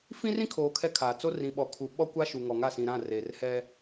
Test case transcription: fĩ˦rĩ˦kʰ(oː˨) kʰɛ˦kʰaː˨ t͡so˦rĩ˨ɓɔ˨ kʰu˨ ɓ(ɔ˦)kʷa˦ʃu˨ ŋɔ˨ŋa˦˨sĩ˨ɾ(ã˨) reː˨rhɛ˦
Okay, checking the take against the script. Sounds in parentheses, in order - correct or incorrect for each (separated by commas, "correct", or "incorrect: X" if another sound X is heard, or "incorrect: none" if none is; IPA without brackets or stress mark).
correct, correct, incorrect: ã˦˨